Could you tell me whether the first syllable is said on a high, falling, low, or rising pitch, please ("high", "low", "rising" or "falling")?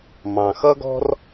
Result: low